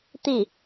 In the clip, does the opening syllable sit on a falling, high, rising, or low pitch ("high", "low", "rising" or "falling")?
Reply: falling